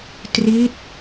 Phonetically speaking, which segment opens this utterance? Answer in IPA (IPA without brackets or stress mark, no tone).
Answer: t